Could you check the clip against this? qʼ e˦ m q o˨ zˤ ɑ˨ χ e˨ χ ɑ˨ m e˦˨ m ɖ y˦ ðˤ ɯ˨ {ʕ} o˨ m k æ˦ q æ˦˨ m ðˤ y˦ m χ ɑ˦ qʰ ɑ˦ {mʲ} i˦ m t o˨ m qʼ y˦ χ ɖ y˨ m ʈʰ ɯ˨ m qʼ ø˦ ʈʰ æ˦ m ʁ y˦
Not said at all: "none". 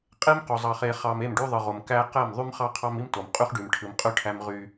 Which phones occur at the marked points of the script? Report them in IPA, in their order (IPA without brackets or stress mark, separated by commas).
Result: ʁ, m